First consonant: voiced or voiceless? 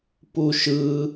voiceless